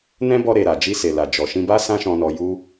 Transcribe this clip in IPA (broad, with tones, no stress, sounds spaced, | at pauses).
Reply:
n ɛ̃˦ b ɔ˧ ɾ e˨ ɾ a˨ d͡ʒ i˧ s e˨ l a˨ d͡ʒ ɔ˨ ʃ ĩ˧ b a˦ s ã˦ ʃ ɔ̃˧ n ɔ˧ j u˦